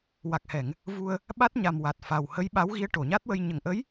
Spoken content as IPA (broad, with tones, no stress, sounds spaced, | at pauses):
w a˨˩ k̚ h ɛ˨˩˨ ŋ | v u˧ ə̯ | ɓ a˦˥ t̚ ɲ a˨˩ m w a˨˩ t̚ f a˨˩ w h ə˧˥ j ɓ a˧˥ w ɣ i˧˥ ə̯ ʈ o˨˩˨ ɲ a˦˥ t̚ w ə˧ j ɲ ə˨˩ ŋ ʔ ə˧˥ j